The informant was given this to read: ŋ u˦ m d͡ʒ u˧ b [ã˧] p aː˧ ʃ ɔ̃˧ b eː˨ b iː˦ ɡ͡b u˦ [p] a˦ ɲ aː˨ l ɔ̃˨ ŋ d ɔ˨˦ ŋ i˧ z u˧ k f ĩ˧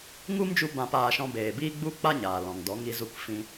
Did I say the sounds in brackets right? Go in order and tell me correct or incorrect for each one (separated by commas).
correct, incorrect